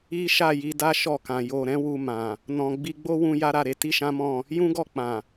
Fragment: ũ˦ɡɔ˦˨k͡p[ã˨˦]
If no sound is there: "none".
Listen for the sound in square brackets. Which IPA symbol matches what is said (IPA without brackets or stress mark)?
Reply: ã˨